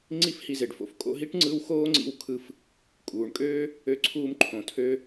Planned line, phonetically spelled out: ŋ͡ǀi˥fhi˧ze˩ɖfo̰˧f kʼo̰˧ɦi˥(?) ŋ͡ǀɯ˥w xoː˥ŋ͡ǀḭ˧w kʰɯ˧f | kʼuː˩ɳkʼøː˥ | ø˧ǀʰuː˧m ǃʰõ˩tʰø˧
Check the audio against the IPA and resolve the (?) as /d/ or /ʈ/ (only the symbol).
ʈ